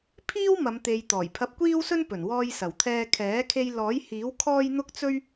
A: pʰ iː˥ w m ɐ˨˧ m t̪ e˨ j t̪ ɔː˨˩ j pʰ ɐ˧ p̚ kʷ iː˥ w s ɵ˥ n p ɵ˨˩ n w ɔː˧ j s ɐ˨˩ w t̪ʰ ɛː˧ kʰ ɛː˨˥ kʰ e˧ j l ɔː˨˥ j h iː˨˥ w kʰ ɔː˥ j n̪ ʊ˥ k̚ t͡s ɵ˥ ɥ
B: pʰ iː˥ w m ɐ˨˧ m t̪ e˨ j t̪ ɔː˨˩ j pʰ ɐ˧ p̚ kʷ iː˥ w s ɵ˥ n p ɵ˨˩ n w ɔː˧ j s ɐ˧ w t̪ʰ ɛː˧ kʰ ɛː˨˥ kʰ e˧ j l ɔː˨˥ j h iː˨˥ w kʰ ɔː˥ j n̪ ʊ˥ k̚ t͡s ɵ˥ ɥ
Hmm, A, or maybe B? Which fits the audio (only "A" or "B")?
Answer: A